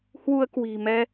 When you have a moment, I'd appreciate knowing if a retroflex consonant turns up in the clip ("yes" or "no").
no